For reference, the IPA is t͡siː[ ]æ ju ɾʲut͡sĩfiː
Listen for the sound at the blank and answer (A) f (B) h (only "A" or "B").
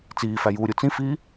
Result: A